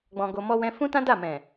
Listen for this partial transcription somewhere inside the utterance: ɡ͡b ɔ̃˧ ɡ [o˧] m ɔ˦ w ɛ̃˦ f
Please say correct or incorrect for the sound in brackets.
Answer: correct